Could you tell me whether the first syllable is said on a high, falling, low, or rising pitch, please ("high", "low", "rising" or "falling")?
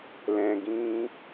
low